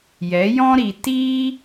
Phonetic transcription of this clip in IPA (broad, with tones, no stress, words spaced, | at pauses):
jɛ˨˦jɔ̃˦ɾi˨ tiː˦